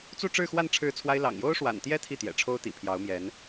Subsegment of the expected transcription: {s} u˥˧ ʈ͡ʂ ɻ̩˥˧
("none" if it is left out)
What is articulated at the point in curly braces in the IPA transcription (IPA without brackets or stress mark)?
t͡s